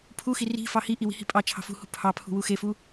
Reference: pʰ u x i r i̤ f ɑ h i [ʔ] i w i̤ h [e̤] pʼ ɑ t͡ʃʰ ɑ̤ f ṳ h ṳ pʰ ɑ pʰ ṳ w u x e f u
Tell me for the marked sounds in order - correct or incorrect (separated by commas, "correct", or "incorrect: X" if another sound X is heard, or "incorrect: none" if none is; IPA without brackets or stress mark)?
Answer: correct, incorrect: i̤